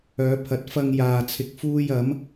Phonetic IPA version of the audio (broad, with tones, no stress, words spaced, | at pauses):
œː˨˧pʰɐ˨˥t̚ fɐ˧ŋ jaː˧t͡sʰɪ˧k̚fuː˥j ɐ˨˥m